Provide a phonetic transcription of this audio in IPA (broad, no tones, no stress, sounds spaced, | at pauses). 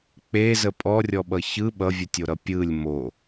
k͡p e z ə pʼ ɔ rʲ ɔ ɓ ʌ ç ɯ ɓ ʌ vʲ u tʲ o ɾ ʌ pʲ ɯ lʲ m o